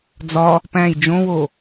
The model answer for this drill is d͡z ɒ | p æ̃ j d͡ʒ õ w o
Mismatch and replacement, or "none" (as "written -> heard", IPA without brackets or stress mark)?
none